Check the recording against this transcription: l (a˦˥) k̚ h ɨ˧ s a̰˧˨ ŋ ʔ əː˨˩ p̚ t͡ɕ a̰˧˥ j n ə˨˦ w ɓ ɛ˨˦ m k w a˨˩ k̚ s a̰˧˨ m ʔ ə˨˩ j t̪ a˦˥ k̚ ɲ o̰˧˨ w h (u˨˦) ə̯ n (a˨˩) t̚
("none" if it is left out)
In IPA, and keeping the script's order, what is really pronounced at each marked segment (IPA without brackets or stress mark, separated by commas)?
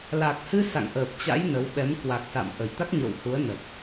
a˨˩, u˨˦, ə˨˩